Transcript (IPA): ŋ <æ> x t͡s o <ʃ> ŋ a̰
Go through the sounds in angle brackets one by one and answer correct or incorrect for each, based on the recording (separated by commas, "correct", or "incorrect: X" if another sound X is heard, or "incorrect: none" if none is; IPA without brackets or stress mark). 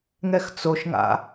incorrect: ɛ, correct